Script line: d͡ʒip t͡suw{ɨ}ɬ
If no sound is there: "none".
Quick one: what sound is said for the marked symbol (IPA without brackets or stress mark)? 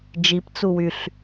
y